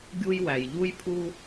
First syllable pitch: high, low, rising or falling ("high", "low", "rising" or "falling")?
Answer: high